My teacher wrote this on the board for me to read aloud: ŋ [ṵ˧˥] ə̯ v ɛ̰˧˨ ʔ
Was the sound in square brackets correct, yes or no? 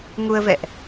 no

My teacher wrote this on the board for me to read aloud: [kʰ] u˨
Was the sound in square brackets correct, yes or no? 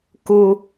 no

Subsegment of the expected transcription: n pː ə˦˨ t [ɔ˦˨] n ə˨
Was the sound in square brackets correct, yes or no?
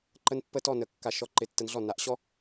yes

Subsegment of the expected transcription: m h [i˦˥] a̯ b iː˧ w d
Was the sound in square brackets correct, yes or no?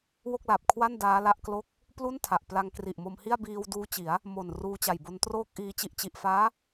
no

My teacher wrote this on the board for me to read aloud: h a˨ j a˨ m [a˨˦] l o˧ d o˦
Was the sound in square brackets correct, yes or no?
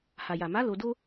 yes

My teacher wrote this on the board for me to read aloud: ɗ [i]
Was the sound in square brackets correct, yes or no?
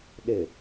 no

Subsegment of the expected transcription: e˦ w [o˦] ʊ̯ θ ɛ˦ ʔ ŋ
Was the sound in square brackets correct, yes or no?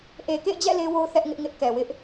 yes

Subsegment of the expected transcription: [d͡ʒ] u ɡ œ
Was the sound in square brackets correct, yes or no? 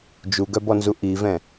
yes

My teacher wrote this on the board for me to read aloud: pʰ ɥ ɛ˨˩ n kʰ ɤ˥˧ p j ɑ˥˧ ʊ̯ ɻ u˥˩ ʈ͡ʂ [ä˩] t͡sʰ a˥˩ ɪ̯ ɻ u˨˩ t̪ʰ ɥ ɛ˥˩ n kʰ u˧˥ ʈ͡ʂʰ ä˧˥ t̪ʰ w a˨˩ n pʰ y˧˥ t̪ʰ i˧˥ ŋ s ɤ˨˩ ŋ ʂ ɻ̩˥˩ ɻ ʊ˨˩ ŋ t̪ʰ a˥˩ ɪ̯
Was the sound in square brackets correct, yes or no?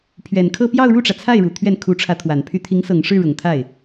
yes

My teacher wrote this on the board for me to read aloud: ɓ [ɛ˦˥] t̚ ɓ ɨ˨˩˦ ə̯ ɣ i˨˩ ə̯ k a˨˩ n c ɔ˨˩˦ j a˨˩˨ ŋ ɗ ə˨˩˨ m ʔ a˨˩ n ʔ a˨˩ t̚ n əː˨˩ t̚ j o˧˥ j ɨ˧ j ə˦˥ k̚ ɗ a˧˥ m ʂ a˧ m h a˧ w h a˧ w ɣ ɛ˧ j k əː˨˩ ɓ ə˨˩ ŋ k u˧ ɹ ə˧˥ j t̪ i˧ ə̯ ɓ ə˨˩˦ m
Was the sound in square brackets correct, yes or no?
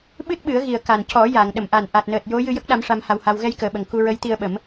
no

